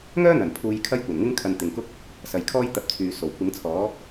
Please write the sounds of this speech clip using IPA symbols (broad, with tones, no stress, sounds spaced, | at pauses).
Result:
ŋ œː˥ n̪ ɐ˨˩ n pʰ uː˧ j kʰ ɐ˥ j kʷ ɐ˨˩ n ŋ ɪ˥ ŋ kʰ ɐ˨ n t̪ ɪ˨ ŋ k ʊ˥ k̚ | s ɐ˨ j kʰ ɔː˥ j t̪ ɐ˨˥ p̚ t͡sʰ yː˨ s o˨˩ w kʷ ɪ˨˥ ŋ t͡sʰ ɔː˨˥